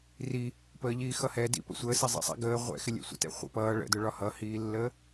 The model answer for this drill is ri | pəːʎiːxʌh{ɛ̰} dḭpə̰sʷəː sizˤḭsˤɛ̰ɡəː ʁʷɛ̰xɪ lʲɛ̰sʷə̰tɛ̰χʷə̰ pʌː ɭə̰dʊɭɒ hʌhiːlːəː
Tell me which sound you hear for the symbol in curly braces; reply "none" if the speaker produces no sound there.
ɛ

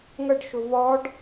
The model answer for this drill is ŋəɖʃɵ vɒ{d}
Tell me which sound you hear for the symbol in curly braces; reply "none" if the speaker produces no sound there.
ɖ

